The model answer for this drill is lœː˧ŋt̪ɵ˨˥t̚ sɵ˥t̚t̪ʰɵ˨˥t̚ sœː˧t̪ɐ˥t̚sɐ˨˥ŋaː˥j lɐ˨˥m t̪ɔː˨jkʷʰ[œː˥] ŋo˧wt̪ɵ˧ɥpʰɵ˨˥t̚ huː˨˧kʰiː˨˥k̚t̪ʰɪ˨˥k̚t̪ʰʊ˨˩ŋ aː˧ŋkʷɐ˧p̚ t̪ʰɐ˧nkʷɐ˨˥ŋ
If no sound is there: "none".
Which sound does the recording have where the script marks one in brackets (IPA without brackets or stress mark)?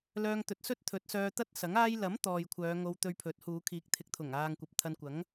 œː˨˧